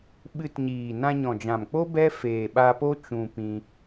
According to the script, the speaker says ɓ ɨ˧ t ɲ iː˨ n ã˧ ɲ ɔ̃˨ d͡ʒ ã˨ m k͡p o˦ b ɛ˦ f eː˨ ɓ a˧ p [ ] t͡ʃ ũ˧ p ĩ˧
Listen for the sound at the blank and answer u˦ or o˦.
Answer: o˦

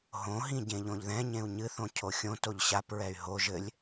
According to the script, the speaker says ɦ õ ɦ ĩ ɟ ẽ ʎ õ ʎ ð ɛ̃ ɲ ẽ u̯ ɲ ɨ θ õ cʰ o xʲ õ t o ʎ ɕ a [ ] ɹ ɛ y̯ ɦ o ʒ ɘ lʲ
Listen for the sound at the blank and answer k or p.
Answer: p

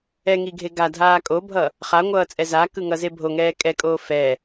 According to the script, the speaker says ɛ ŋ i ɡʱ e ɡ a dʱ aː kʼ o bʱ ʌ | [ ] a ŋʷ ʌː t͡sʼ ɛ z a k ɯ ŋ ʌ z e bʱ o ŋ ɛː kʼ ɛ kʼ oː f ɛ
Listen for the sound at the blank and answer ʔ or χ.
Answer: χ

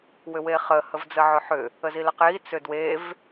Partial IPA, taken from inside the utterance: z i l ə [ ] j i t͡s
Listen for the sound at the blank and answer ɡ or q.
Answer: q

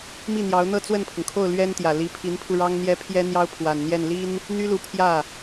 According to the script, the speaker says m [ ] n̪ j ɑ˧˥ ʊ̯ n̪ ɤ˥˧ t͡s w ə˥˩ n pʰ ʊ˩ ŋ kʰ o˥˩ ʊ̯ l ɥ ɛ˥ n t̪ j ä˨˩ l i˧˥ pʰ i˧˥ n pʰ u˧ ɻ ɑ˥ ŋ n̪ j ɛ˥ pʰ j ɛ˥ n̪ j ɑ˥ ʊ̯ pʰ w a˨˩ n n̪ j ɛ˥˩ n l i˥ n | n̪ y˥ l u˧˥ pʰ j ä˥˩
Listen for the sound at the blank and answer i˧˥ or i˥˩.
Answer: i˥˩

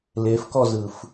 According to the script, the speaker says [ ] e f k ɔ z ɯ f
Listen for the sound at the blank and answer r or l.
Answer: l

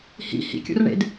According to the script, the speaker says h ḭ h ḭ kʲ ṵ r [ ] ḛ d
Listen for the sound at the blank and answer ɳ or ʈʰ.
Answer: ɳ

